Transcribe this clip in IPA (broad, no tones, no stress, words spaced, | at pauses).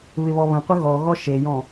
βɪβɔβə̃qʷə ɣɔɣɔ ʃejɔ̃